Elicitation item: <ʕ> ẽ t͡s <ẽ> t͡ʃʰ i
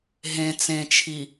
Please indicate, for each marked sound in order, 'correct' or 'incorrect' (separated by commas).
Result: incorrect, correct